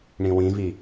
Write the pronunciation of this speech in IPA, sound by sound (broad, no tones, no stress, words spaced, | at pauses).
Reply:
ɳĩwĩvi